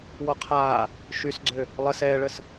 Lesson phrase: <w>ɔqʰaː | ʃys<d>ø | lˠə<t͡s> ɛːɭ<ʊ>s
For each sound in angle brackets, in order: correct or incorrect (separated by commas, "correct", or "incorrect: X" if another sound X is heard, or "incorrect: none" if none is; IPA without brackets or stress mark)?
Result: correct, incorrect: ɡ͡ǀ, incorrect: s, incorrect: ə